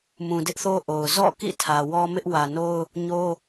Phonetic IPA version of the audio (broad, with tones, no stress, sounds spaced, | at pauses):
m ũ˨ d ɪ˦ ʔ θ o˦ ʔ o˨ ʊ̯ z ɔ̰˦˨ k ḭ˦˨ tʰ ä˨ w ɔ˦ m ɪ˦ ʔ w ä˨ n o˦ ʊ̯ | ɲ o˦